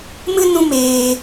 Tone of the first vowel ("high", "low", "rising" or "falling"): high